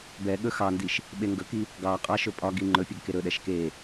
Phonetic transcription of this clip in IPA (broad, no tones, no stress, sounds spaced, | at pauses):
b ɛ ɠ ɵ x ɑ n d i ʃ | ɓ e ŋ ɡ ɵ k i | ɡ ɑ qʼ ɑ ʃ ɵ pʼ ɒ ɡ i ŋ͡ǃ ɵ pʲ ɛ ɡ k e ɾ ɵ ɗ ɛ ʃ k e